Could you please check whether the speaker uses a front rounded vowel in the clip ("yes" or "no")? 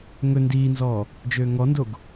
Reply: yes